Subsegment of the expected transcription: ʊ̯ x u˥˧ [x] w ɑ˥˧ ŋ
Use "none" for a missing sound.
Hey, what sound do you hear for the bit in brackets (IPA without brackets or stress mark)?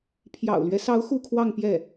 kʰ